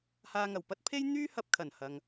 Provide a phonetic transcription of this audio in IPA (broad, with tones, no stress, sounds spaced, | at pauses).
h aː˧ ŋ ɐ˨˩ w p ɐ˥ t̚ pʰ e˥ j n̪ yː˥ h ɐ˧ p̚ kʰ ɐ˨˩ n h ɐ˧ ŋ